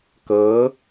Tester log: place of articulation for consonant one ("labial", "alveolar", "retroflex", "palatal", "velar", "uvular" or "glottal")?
velar